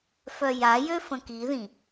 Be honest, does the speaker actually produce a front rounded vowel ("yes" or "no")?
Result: yes